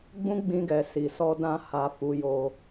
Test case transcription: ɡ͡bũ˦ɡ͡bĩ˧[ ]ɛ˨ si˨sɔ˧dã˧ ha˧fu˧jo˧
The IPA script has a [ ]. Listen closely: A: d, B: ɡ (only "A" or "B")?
B